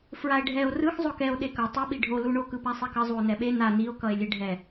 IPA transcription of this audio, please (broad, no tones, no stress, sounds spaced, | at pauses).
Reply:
f ɹ a e̯ ɖʱ ɛ o̯ r ɯ x zˤ o k ɛ o̯ ɗ e k ʌ tˤ u ɓ i ɖʱ o l u ɳ o k ɯ p a sˤ i k ʌ zˤ u o̯ n ɛ ɓ e n a n i o̯ k ʌ e̯ lʲ e ɖʱ ɛ